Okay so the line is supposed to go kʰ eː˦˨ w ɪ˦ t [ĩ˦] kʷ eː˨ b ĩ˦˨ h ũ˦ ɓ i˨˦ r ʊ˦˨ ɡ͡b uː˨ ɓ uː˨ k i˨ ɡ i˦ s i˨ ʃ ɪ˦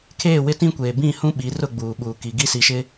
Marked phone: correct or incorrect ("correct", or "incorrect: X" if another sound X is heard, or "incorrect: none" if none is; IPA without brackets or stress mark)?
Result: correct